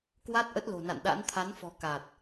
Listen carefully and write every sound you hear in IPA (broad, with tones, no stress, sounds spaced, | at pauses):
k w a˦˥ t̚ ʔ ə˦˥ t̚ l o̤˨˩ n a̰˧˨ n ɗ a̰˧˥ n t̪ʰ a˨˦ n f ɔ̤˨˩ k a˨˩ t̚